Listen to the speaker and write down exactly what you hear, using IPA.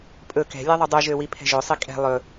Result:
pʼ ɵ k ɛ̤ lʲ e ðˤ u dˤ y ʒ ø w i pʰ ɛ̤ ʒ ø sˤ i kʼ ɛ̤ lˠ ɵ

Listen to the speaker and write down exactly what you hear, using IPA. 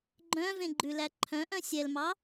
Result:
ɡ͡ǃ œ̃ v ẽ ɡ͡ǃ ʉ l æ ǃʰ œ̃ ʔ œ̃ sʲ ɛ l m ɑ

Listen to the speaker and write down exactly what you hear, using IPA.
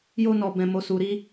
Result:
j o˦ n ɔ˧ b ɛ̃˧ m o˧ s u˧ ɾ i˦

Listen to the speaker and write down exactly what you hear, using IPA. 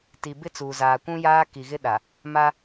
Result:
t i˨ b ɪ˦ t͡s uː˨ z aː˨ kʷ ũ˦ j aː˦ k i˨ ɣ ɪ˦ ɗ a˨ | m a˦

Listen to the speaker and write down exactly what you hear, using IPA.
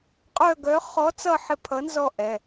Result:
qʼ œ˦˨ ɡ œ˨˥ χ ɔ˨˥ t͡s ʌ˦˨ ħ ɪ˦˨ pʰ ʌ˨˥ n z ɔ˦˨ ʔ ɛ˩˧˩

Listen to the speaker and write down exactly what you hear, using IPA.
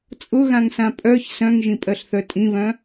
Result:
t͡sʼ ʊ ɣ ã ŋ s ã pʼ œ ç s œ̃ ŋ ʒ ĩ pʼ ɜ ɬ θ œ tʼ ĩ β œ̃

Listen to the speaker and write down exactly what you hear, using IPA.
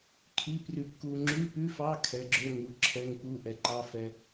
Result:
kʰ i˧˥˧ p r ʉ˧ p k u˧ ŋ͡ǁ ʉ˧˥˧ p ʉ˧˥˧ f ɑ˧˥˧ kʰ ɛ˨˥ ɡ͡ǁ ø˧˥˧ ŋ u˨˥ ǁʰ ɛ˧˥˧ ŋ p u˧˥˧ ʔ ɛ˨˥ ǃ ɑ˧˥˧ f ɛ˧

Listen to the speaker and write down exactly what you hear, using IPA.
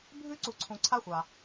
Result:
bʱ ʉ˥ ǀ u˨ ǀʰ ũ˨ ǀʰ a˥ xʷ a˩

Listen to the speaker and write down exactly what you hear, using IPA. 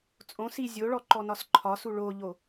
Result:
t͡sʼ õ s i zʲ o ɭ ɔ ǃ ɔ n ɒ s ǃʰ ɒ s u ɭ o ʎ o

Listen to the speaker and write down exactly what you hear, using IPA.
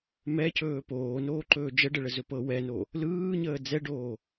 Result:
m ɛ c ɵː p oː n oː ǃ ɵː d͡ʒ ə ɖ ə ɭ ə z ɵ p ɤ w ɛ n o | l ɯː ɲ əː d͡z ɛ ɖ oː

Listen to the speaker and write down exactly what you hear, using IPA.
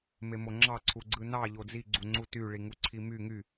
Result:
m e m o ŋ͡ǁ ɑ ǀʰ u ɡ͡ǀ ɯ n ɑ ʎ o d͡z i ɡ͡ǀ u ŋ͡ǀ u t y ɭ i ŋ u ǀʰ i m y ŋ y

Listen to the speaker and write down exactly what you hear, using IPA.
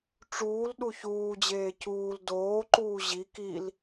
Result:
ʈ͡ʂ uː l ɗ u ç uː d͡ʑ eː c uː l d oː ǃ uː ʑ i k i l

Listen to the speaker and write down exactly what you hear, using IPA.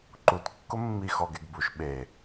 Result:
ǃ u t kː ʊ mː i x ɔ ɡ e ɡ b u ʃ ɓ e

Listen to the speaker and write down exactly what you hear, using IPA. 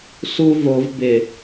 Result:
s u v o v b ɪ

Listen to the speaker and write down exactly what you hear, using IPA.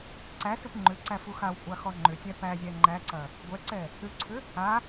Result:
ǀ æ s ɯ p ŋ͡ǃ ʏ ǀ æ f u x a w kʷʼ a x ɔ ŋ͡ǃ ʏ tʲ æ p æ zʲ æ ŋ͡ǃ æ ǀ ɐ | ɡʷ ɛ ǀ ɛ | ʏ ǀʰ ʏ | a

